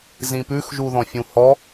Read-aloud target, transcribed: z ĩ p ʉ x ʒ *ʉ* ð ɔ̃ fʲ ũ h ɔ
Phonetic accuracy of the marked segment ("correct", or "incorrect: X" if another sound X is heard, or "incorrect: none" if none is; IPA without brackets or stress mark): incorrect: u